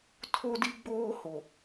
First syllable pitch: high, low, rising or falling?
high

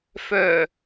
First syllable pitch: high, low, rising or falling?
low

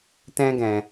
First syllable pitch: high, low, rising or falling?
high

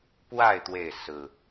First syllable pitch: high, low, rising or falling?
falling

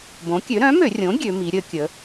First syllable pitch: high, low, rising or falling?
rising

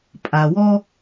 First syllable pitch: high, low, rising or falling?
low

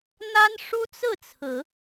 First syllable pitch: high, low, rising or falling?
high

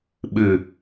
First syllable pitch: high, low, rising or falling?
low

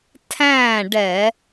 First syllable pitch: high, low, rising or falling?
falling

